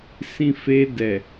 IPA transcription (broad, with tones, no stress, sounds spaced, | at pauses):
s ĩ˧ f e˧ d ɛ˨